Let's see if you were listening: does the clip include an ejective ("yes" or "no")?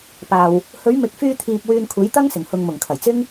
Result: no